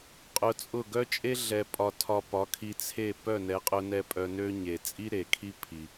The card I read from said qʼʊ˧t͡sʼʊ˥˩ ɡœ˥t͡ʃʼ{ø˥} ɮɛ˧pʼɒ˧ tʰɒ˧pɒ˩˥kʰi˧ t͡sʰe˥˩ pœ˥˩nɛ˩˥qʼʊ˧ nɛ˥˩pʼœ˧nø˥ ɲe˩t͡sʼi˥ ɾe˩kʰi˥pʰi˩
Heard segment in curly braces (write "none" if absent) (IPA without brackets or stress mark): e˥